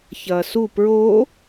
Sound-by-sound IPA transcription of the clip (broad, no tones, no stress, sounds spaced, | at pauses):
ç ɐː s u p ɹ oː